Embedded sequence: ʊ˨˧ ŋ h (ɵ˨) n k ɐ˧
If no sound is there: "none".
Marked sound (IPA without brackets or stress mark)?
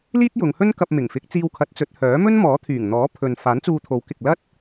ɵ˥